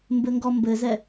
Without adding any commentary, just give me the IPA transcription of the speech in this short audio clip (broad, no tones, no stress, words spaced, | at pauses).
mbɘŋɡɔmbɘzɛ